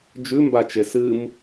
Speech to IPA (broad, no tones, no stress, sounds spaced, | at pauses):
d͡ʒ ʉ m b a t͡ʃ e s ɨ m